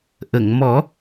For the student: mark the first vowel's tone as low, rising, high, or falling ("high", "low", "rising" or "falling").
low